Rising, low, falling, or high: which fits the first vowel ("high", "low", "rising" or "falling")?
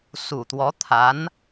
low